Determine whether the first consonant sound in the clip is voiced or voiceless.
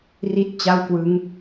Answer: voiced